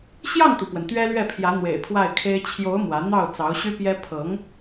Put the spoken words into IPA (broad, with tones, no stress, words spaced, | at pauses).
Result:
ɕjɑ˥˩ŋt̪u˩pwə˩n t̪ɥɛ˥lɥɛ˥˩pʰjä˧˥ n̪wḛ˨˩ɪ̯pʰwa˥˩ɪ̯kʰe˥ɪ̯ t͡ɕʰjo˧˥ʊ̯ mwä˧˥ n̪ɑ˥˩ʊ̯ t͡sɑ˧˥ʊ̯ɕy˥pjɛ˥ pʰɤ˧˥ŋ